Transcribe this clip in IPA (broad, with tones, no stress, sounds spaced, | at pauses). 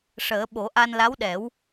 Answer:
ʂ əː˨˩˦ ɓ o˨˩˦ ʔ a˧ n l a˧˥ w ɗ ɛ˨˩˦ w